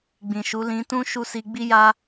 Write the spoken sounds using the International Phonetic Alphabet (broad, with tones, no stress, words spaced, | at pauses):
ɡ͡bĩ˨ʃu˨˦ lĩ˧tũ˦ ʃu˦˨si˧ ɡ͡bi˦ja˦